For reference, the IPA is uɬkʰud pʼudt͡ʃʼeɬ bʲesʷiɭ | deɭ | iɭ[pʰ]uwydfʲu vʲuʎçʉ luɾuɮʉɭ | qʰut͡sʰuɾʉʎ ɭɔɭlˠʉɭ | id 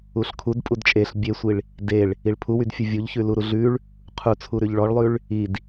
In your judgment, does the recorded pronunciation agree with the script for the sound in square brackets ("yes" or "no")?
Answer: yes